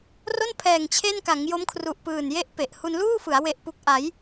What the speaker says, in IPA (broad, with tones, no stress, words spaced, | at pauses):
ro˥˩npʰɛː˨˩ŋ t͡ɕʰe˥˩n ka˩˦ŋjo˦˥mkʰru˨˩ʔpɯː˨˩n je˥˩ʔpe˨˩ʔ hu˧nluː˥˩fɯ˩˦a̯ we˨˩ʔpu˨˩k̚ ʔa˩˦j